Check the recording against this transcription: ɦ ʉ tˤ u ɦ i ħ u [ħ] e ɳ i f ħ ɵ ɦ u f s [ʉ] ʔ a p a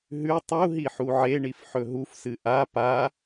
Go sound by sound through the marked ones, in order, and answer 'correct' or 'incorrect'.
incorrect: ʕ, incorrect: ɨ

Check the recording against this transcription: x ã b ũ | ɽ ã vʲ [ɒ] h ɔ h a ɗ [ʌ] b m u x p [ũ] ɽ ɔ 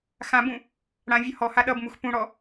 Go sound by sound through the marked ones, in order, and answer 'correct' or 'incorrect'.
incorrect: ʌ, correct, correct

